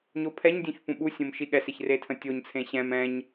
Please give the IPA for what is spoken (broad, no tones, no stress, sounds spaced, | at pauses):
ɲ o pʰ ɛ ɲ dʲ ũ ç p ũ ɓ u sʲ õ m ʃ i ɠ ɛ s e ç r e tʰ ə̃ tʲ o ɲ t͡sʰ ẽ ɕ ɛ̃ m ɛ̃ ɲ